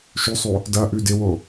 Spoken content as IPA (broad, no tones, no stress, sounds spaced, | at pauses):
ʃ ʉ sˤ o | d ɐ ʔ ʉ d ɪ w o